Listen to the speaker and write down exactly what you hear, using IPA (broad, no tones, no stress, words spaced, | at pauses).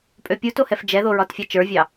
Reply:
pʼøpʲuto hɛfd͡ʒɛðo ɹɒtfʲɑt͡ʃə˞vʲɑ